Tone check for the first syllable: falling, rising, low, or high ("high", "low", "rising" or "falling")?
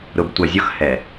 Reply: low